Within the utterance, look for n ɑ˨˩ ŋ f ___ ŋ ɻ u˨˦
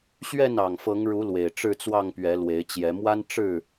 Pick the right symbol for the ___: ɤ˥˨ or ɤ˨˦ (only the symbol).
ɤ˨˦